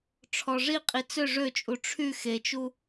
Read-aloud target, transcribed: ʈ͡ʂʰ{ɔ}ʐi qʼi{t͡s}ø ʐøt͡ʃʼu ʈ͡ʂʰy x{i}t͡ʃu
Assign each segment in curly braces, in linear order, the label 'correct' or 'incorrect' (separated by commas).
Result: correct, correct, incorrect